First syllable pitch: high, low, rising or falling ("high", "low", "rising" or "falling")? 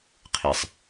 low